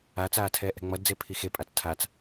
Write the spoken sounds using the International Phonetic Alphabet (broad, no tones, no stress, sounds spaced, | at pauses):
a t͡s aː tʰ ɛː ʔ ɛ̤ ŋ͡m ʌ d d͡z e pʰ i x e pʼ a t͡s tʰ a t͡s